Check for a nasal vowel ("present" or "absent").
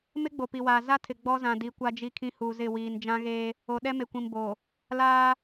present